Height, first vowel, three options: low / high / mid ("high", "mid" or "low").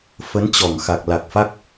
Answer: mid